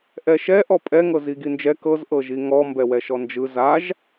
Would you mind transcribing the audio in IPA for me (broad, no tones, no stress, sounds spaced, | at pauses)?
ʔ ɛ ʃ ɛ ʔ ɔ pʼ ɛ ŋ ɤ z i ɡ i n d͡ʒ ɛ k ɤ z ʔ ɤ ʒ i ŋ ɔ m b ɛ w ɛ ʃ ɔ n d͡ʒ ɯ z a ʒ